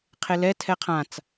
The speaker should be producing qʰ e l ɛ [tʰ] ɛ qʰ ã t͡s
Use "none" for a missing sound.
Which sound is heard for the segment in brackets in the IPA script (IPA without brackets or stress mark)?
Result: tʰ